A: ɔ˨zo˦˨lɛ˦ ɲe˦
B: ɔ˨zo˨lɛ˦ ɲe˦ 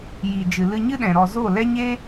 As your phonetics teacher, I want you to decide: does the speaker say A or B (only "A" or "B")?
A